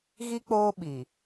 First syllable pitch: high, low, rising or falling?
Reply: high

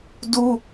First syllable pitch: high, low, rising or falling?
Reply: high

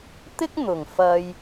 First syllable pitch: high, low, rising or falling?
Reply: high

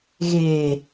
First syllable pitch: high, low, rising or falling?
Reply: low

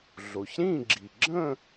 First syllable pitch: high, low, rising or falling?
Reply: low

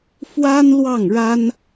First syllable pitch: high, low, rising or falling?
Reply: high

